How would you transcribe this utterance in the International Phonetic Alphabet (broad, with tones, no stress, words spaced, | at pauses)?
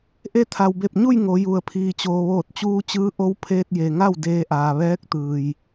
ʔe˧t̪ʰa˩wbe˧˩p̚ɲu˥˨j ŋo˩˧ju˩ə̯pʰiː˩ t͡ɕoː˩ʋoː˧˩t̚t͡ɕuː˧t͡ɕɯː˧˥ ʔo˧˥w pʰeː˧t̚ je˩ŋa˥˨w deː˧ʔaː˩ ʋɛː˧˥k̚t̪ɯː˩j